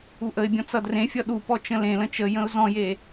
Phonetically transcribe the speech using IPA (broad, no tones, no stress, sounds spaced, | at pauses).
u ʔ ə ɪ̯ bʲ ɔ̃ t͡s ʌ d r ẽ fʲ ʌ ɗ u p ɔ t͡ʃ ə̃ l ẽ l ə̃ t͡ʃ ə j ə̃ ʊ̯ z ɔ̃ j e